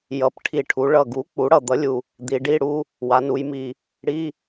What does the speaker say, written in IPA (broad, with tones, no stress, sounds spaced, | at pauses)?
j ʌ˩˥ p ʈʰ i˨˩ ʈʰ u˩˧ ɭ ʌ˨˩ ɡ u˩˥ k͡p u˩˥ ɽ ʌ˨˩ d̪ ʌ˩˥ lʲ u˨˩ | d̪ i˩˧ ɖ i˧˥˧ ɽ u˧˥˧ | w a˩˧ n u˩˧ j m i˨˩ | ɽ i˧˥˧